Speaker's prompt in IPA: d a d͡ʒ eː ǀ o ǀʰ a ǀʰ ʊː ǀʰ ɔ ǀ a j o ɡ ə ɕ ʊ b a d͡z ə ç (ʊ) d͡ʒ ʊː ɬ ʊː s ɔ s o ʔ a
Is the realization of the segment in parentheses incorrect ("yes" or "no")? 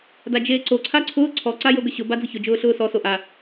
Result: no